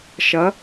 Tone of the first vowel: rising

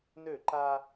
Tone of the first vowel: falling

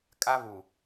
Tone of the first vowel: high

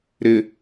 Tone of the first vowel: low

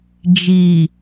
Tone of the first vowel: low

